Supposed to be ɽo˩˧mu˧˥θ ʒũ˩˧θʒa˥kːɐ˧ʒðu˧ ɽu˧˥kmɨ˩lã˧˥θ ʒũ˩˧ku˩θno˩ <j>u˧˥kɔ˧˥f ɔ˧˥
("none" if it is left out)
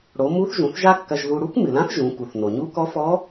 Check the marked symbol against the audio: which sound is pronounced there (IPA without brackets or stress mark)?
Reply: ɲ